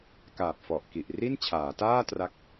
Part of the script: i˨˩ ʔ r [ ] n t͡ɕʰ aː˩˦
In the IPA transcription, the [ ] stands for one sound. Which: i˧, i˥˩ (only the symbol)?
i˥˩